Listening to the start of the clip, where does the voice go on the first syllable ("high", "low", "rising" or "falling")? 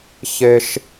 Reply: high